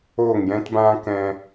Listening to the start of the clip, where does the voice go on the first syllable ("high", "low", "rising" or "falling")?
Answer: falling